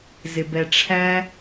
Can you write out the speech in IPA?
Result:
zɪbɛʈ͡ʂʰæ

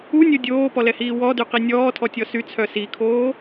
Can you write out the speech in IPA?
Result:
unʲo dʲoːpɔlɛhiː wɔdyqi nʲɔːtʰɔtʲɔ syt͡sʰœ sikʰoː

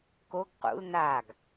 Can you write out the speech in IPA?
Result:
koɡ qṵl naɡ

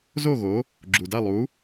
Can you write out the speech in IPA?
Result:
zo˥˩ɣo˩˥ | ɡ͡ǁu˩da˥˩lˠu˩˥

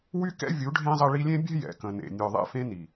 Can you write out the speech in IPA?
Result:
wy˦kɛ̰˦ vʲu˨˦ɖʱẽ˦zˤə˧ ɭi˧lʲẽ˦bʲɛ̤˦ jɛ̰˨kə̃˨nḛ˨ nʲœ˨ðˤɛ̰˧fẽ˧ ni˨

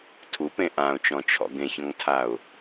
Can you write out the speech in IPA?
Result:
tʰupẽ ʔãʊ̯t͡ʃɔ̃t͡ʃʰɔ̰ ɡẽçɔ̃ŋtʰaʊ̯

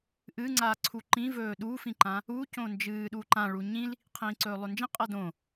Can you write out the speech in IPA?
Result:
ʔɨŋ͡ǀaǀʰu ǃĩvɵː ɗufĩǃã | ucõ nd͡ʒɨːɗuǃã ɭuɲĩl | qʰĩːǀɵːlˠɵnd͡ʒĩ qʼɐdõ

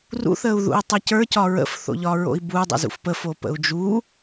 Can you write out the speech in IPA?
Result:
rṵ θəːu̯ðṵi̯tˤʌcə˞ cɒɹə̰f θo̰ʎɒɹo̰i̯bu dˤɛ̰zṵfpə fopə̰u̯d͡ʒu

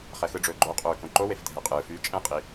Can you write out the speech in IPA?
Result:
χɛxɯɖ͡ʐɵː ɡ͡ǃoqʼɵː kõǃowef dʱɛqʼɯːfyː t͡ʃʼɛ̃qʼi

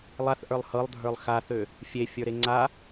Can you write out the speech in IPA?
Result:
lˠaθʔə˞lˠ hɤlˠdʱə˞lˠ xaθø | fʲefʲə˞ɾe ŋ͡ǀa

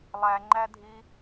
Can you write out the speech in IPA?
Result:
lˠæŋ͡ǃædʱi

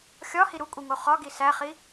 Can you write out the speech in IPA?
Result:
xʲɒhi ɾukʷʼiŋo χɒɡi sæχi

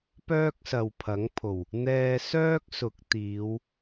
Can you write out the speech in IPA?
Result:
pœː˥k̚sɐ˨wpʰɐ˨˥ŋpʰo˨˩w | n̪ɛː˧sœː˥k̚sʊ˨˥k̚ t̪iː˨˧w

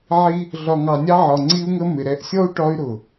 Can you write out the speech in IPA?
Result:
ʕi˦ | ɮɒ˨ŋɑ˨nʲɑ˧ ʕɒ˨ŋ͡ǀi˧u̯ŋə˧ mɪ˨ɾɛ˧ʔ sʲɔ˦u̯ ʈɒ˧y̯ɾʊ˨

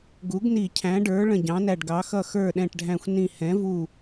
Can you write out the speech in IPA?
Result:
ɡu˩˥ɡni˧˩˧ cʰæ̃˩˥ɖə˞˩˥ ɭə̃˧˩ɟɑ̃˩˥næ˧˩ɖɡɑ˩˥ xʌ˧˩xə˞˧˩ ɗɛ̃˧˩ʈɖʱæ̃˧˩xʷnĩ˧˩ hɛ̃˩˥vu˧˩

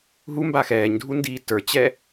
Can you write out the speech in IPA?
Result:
ɦumba xɛːɲdʱundiː tə˞t͡ɕɛ

